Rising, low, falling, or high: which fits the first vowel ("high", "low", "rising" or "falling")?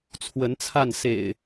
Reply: rising